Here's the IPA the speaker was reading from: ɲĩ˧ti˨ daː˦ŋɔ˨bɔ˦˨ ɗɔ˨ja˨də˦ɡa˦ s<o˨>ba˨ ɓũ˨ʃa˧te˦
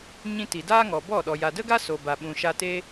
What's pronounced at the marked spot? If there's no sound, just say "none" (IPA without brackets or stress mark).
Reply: o˨